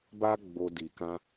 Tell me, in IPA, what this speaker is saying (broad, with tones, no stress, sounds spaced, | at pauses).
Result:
b a˦ ɡ͡b o˧ d i˨ k ã˧